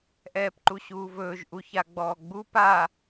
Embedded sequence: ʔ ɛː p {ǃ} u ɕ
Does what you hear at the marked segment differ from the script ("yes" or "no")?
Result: no